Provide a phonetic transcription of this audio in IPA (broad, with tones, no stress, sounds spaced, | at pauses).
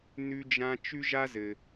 n ʉ˥ d͡ʒ ã˥ t͡ʃ ʉ˥ ʒ a˥ z ɘ˨